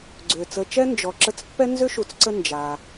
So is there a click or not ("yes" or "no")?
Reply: yes